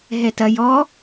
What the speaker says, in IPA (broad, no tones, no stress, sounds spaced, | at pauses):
ɦ ɛ t ɐ j ɔ